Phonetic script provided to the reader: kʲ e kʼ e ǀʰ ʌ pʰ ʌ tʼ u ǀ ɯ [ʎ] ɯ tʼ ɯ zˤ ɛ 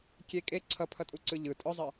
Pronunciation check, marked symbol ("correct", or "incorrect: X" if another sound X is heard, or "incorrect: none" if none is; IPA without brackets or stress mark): correct